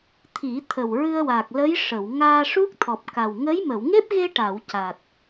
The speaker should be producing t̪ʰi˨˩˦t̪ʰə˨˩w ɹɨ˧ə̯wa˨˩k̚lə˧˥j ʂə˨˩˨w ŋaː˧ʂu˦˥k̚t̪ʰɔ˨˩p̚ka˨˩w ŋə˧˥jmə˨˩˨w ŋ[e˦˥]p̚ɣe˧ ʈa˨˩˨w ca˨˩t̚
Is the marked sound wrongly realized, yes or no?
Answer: no